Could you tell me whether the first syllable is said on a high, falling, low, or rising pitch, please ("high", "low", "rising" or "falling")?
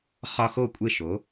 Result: high